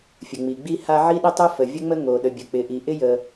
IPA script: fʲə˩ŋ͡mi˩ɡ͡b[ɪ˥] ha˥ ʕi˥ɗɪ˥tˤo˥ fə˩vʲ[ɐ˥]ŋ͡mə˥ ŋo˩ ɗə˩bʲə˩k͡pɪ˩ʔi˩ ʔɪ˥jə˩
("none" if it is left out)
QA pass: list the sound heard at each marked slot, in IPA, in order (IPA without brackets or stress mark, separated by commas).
i˥, ə˥